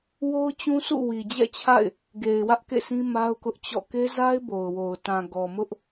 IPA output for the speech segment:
w o˦ ʊ̯ t͡ɕ ũ˦ s ṵ˦˨ w i˨ d͡ʑ ɛ̰˦˨ t͡ɕʰ a̰˦˨ ɪ̯ | ɡ e˨ ɪ̯ w ä˦ ʔ k ḛ˦˨ sʰ ĩ˦ m a˦ ʊ̯ k ʊ˦ ʔ t͡ɕ ɔ̰˦˨ k e˦ z a˦ ɪ̯ b o˨ ʊ̯ w o˨ ʊ̯ t ã˨ ɡ ɔ˨ m ʊ˦ ʔ

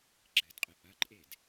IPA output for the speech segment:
ɡ͡ǁ ɘ d qʼ ɘ ʔ ɐ ǃʼ e d

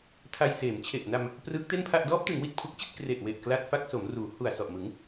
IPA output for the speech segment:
tʰ a˧ j s eː˩˦ m t͡ɕʰ e˨˩ ʔ n a˧ m | p r ɯː˦˥ k̚ t e˥˩ n pʰ a˥˩ ʔ d ɔː˦˥ p̚ t ɯ˩˦ ŋ w i˨˩ t̚ pʰ u˦˥ k̚ t͡ɕ i˥˩ t̚ k r e˨˩ ʔ w e˨˩ ʔ k l a˦˥ t̚ f a˦˥ k̚ s o˩˦ m r uː˩˦ h u˨˩ a̯ s ɔ˨˩ ʔ m ɯ˩˦ ŋ

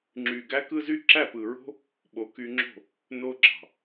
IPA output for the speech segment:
ŋ͡ǁ y˨ ɡ æ˦ k ɯ˦ z y˦ ǁ æ˦˨ p ɯ˨ ɹ o̤˦ | ɓ o˨ k y˧ ŋ͡ǁ o̤˦˨ | n o˧ ɡ͡ǁ ɑ̤˨

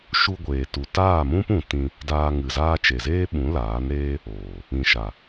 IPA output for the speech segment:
ʃ u˧ ɡʷ eː˨ t u˨ t aː˦˨ m ũ˦ p ũ˨ t ĩ˧ | d aː˧ ŋ ɨ˨ z aː˦ t͡ʃ e˨ z eː˦ ɓ ũ˨˦ l aː˨˦ n ɾ eː˦ | oː˨ | ĩ˨ ʃ a˨

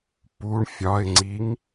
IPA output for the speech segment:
p u ɳ fʲ ɒ ɪ̯ ŋ͡ǀ i ŋ

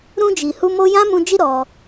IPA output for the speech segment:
ɾ ũ˧ d͡ʒ i˨ h u˧ m o˧ j ã˦ m ũ˧ d͡ʒ i˦ ɾ ɔ˧

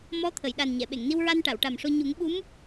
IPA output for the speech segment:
m ɔ˧˥ t̪ʰ ə˨˩˨ j ɗ a˨˩ n ɲ ɛ˨˩˨ ɓ e˨˩˨ ŋ n i˧ w ɹ a˧ n ʈ a˨˩˨ w ʈ a˨˩ m ʂ o˧ ɲ u˨˩˦ ŋ ɓ u˧˥ m

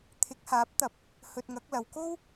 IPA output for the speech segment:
t̪ʰ ɪ˨˥ k̚ h aː˨˥ p̚ t̪ ɐ˨˥ p̚ | h ɵ˧ t̚ ŋ ɐ˨˥ k̚ l ɐ˨ w k o˥ w

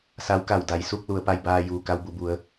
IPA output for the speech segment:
s a˧˥ w k a˧˩ w d a˩˧ j s u˥˨ k̚ l u˩˧ ə̯ p a˧ j b aː˧ j uː˩ k a˧ w b u˧˩ b u˩˧ ə̯

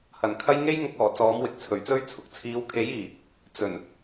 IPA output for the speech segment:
h ɐ˨˩ n kʰ ɐ˥ j ŋ e˥ j ŋ ʊ˧ k̚ ɔː˨˩ t͡s ɔː˨˥ m w ɪ˨ k̚ t͡sʰ ɵ˨˩ ɥ t͡s ɵ˥ ɥ t͡sʰ ʊ˨ k̚ t͡sʰ iː˨˧ w kʰ e˨˥ j iː˨˩ | t͡s ɵ˨˩ n

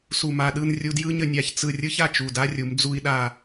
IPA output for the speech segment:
s u˧˩ m a˧˩ ɗ ɯ˥˧ n rʲ u˧ d j ɯ˥ ɲ ə˧ nʲ a˧˩ ç t͡s ɯ˧˩ rʲ ɯ˥ ç a˧˩ t͡ʃ u˧˩ d a˥ rʲ u˩˧ m d͡z u˧ i̯ ɗ a˧˩

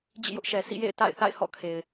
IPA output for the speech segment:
d͡ʑ ḭ˦˨ j ʊ˦ ʔ ʃ ɛ˨ s ḭ˦˨ j ḛ˦˨ ɪ̯ t a̰˦˨ ɪ̯ θ a̰˦˨ ɪ̯ h ɔ̰˦˨ kʰ e˨ ɪ̯

